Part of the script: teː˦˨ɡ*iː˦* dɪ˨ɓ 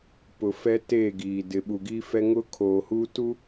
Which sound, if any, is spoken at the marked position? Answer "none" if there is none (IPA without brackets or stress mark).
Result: iː˨